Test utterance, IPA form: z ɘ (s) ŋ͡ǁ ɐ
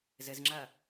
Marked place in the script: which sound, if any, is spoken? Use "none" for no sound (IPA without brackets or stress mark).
z